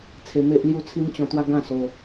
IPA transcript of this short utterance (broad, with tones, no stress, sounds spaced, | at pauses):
t͡sʰ e˧ m e˦ ʔ l j u˥˧ t͡sʰ i˦ m t͡ɕ ɔ̃˧ t̪ w a˦ ɡ ã˥˧ s o˧